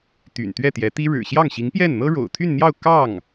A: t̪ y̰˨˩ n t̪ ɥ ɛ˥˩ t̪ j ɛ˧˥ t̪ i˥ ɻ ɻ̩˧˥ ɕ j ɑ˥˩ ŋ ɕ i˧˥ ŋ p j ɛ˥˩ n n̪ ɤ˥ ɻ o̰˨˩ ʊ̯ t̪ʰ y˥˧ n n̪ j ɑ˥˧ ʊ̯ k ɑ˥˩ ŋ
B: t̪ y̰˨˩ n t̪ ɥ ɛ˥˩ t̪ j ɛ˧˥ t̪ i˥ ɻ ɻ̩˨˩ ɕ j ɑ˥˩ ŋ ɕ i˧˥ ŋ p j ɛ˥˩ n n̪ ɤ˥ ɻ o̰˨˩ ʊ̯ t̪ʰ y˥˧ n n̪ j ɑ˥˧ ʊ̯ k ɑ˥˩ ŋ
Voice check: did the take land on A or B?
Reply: B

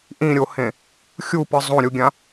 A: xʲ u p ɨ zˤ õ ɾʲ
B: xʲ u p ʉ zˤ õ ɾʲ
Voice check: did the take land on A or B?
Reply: A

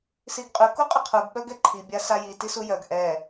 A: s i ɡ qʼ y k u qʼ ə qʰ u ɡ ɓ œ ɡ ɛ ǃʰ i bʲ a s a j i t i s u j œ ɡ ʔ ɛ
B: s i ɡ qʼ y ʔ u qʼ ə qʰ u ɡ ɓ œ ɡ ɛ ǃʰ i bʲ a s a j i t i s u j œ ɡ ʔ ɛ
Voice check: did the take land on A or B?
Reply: A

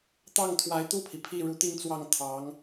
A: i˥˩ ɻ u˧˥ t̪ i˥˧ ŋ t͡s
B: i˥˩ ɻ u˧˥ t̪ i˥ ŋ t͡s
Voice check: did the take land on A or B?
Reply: A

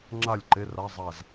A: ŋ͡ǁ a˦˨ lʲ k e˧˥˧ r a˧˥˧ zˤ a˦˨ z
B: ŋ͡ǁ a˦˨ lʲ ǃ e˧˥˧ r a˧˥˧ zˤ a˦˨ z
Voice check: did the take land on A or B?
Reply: B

